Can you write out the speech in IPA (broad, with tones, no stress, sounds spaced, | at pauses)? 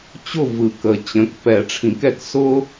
t͡ɕ ʊ˦˨ v ɯ˨˩˦ k ə˨ t͡ɕ ə̃˩˥ k p ɛ˨˩˦ ʈ͡ʂʰ ĩ˨˩˦ k ɛ˨ k s ʊ˦